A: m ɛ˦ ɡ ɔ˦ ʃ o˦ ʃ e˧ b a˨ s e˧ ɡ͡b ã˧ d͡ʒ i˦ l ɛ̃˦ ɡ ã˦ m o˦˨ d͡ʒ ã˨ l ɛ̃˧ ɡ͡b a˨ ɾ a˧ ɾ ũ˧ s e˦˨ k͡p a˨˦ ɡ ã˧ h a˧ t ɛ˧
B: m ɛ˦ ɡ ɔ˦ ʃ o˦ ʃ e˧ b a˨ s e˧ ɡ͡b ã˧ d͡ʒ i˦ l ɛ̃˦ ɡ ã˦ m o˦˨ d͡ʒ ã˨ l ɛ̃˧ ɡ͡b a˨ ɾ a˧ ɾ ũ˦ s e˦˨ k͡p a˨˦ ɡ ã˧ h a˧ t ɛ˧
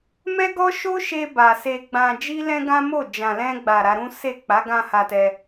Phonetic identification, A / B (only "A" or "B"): B